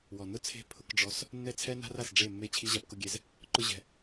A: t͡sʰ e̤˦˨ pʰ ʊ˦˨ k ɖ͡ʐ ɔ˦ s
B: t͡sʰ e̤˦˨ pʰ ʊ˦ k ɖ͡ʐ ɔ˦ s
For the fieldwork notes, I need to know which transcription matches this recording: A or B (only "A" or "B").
B